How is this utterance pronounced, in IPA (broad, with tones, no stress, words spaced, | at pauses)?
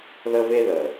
ðə˥ve˥ ðə˩